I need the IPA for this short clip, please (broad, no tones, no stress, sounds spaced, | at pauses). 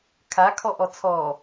kʰ a kʰ ɔ ʔ ɔ t͡sʰ ɔ